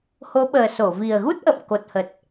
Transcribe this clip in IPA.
h o˨˦ ɓ əː˨˩ s o˧˩ v i˨˩ ə̯ ɣ u˦˥ t̚ ʔ ə̰ː˧˨ m k o˨˩ t̚ h ə˨˩ t̚

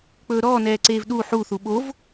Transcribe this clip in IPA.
k͡p ɵː ɾ ɔː n ɛː ǀ eː v ɗ u ħ u θ u ɓ o v

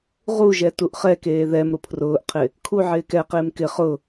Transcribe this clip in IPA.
ʁ u ʒ ɛ t u ʔ χ ɛ k eː ð ɛ m ɾ ʊ pʰ r ʊː ʔ qʰ ɪ | kʰ u ʕ ɪː k ɛ q ɪː m k ɪ χ ʊ

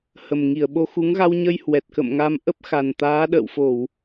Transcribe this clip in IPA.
h ə˨˩ m ŋ i˧˩ ə̯ ɓ o˧ x u˨˦ ŋ ɣ a˧ w ɲ ə˧ j h w ɛ˨˩ t̚ k ə̰˧˨ m ŋ a˧ m ʔ ə˦˥ p̚ x a˨˩ n t̪ aː˨˦ ɗ ə̰ː˧˨ w f o˧˩˨ w

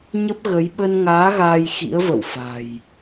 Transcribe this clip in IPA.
ɲ ə˦˥ p̚ ɣ ə˨˦ j ɓ ə˧ n ŋ aː˨˦ ɣ aː˧ j x ḭ˧˥ ə̯ v ə̰˧˨ w f a̤˨˩ j

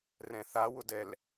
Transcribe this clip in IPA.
r ɛ̃ θ a w ʊ d ɛ l

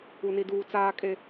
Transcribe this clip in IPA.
u˦ n i˦ d uː˦ t͡s aː˦ kʼ e˦

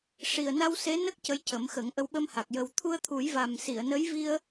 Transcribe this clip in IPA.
ʂ i˨˩ ə̯ n a˧ w s e˧˥ n ə˦˥ k̚ c ə˧ j c ə˨˩˦ m x ə˨˩˦ ŋ ʔ ə˧˥ w ɓ ə˧ m h a˨˩ k̚ j ə˨˩ w t̪ʰ u˧ ə̯ t̪ʰ u˨˩˦ j v a˨˩ m s i˨˩˨ ə̯ n ə˧˥ j v i˧ ə̯

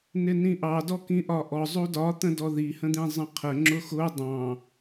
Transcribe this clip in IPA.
n ɪ n ĩ ʔ ɑ d ɔ k ĩ ʔ ɒ ʔ ɔ zˤ u d ɒ t̪ ə̃ d ɔ ð i h ə̃ d̪ ĩ zˤ ə̃ qʰ ə ŋ͡ǁ ʊ x ʊ dˤ ɑ̃

